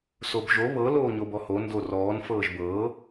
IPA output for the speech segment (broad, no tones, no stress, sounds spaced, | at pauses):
s o b ʒ o β ɤ l oː ɲ o b ɔ h o n d o r ɔː n f ɤː ʒ b ɤː